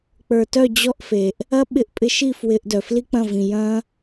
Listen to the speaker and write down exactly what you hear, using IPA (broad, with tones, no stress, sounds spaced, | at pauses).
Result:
k͡p ə˞˨ t œ˦˨ d͡ʑ ɔ˦ ʔ f e˨ ʔ | ɐ˦ ɓ ɪ˧ ʔ pʼ ɪ˧ ʃ i˦˨ f w ɪ˧ ʔ d œ˨ f l i˦ k͡p ɐ̃˦˨ v ĩ˨ j ɐ̃˦